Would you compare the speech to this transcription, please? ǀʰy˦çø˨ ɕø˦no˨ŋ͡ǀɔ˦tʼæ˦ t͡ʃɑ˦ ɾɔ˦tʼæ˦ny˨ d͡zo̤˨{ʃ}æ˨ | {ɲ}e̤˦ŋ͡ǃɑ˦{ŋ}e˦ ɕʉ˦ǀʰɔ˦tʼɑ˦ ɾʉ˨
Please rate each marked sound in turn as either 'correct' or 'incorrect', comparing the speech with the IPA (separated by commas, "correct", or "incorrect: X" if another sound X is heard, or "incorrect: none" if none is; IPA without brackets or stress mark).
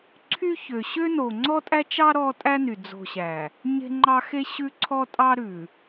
incorrect: ɕ, correct, incorrect: x